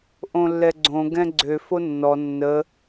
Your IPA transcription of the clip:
ʔ õ lː ɛ ɡ͡ǀ õ ɡ ɛ̃ ɡ͡ǀ ø f o nː ɔ nː ə

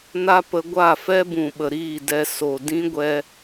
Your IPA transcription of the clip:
n a˦ p ə˧ ɡʷ a˦˨ f ɛ˦ b ũ˨ ɓ ə˨ ɾ iː˦˨ d ɛ˧ s o˨ d ĩ˦ ɡʷ ɛ˧

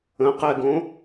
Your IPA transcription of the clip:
ə̃ q ɛ ɡ õ

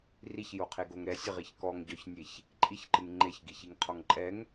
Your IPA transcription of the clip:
r i ç j o qʰ e ɡ o ŋ ɾ ɛ sʲ ɘ ʁ i ç k ɔ ŋ ɟ ɔ ç nʲ e ç | ǃʼ i ç ǃ ɨ ŋ ŋ͡ǃ e ç ɡ i ç i ŋ qʰ ɔ ŋ ǃʼ ɛ ŋ

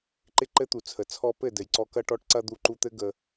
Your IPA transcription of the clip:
ǃ ɪ˦ ǃ ɘ˦ t̪ u˨ t͡sʰ ə˨ t͡sʰ ɔ˧ p ɘ˦˨ d ɘ˨ j ǀ ɔ˧ k ɐ˧ ʈ ɔ˧ ʈ ǀ ɐ˧ d̪ u˧ ǃ u˧ t̪ ɘ˦ ɡ ə˧

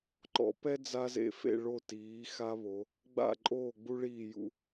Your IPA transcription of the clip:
ǃ ɔ̰˩˧ p ɛ˦ d͡z a˦ z ḛ˦˨ f ḛ˦˨ ɭ o˦˨ t iː˩˧ x a˦ β o˩˧ | ɡ͡b a̰˦˨ ǃʼ oː˦˨ ɡ͡b u˦ ɭ iː˦˨ j ṵ˦

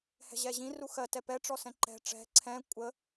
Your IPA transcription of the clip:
h ɛ̤ ʑ ɛ ʑ ĩ r u x ɜ t ɛ p ɛ ʈ͡ʂ ɔ s ɛ̃ ǃ ɛ̤ ʈ͡ʂ ɛ̤ ǀʰ ɛ̃ kʷʼ ə

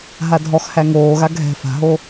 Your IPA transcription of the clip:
ɦ a dʱ ɔ x h æ ŋ oː ɣ a ɡʱ ɛ̤ f a̤ ɦ o

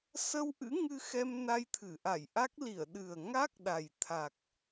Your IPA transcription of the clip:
s ə˧ w ʔ ɨ̰˧˥ ŋ ɨ˧ x ɛ˧ m n a˧ j t̪ʰ ɨ˧˩ ʔ a˧˩ j ʔ a˦˥ k̚ l i˧˩ ə̯ ɗ ɨ˨˩ ə̯ ŋ a˦˥ k̚ ɗ a˨˩ j t̪ʰ a˨˩ k̚

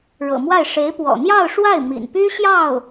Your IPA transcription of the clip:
ɻ ɤ̰˨˩ m w a˥˩ ɪ̯ ʂ e˧˥ ɪ̯ p w ɔ̰˨˩ n̪ j ɑ˥˧ ʊ̯ ʂ w a˥˩ ɪ̯ m ḭ˨˩ n p y˥ ɕ j ɑ˥˩ ʊ̯

